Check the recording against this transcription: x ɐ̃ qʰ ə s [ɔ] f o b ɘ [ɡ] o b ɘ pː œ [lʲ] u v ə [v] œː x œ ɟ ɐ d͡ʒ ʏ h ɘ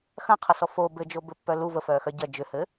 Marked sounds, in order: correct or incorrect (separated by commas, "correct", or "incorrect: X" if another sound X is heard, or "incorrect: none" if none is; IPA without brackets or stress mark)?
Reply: correct, incorrect: d͡ʒ, incorrect: l, incorrect: f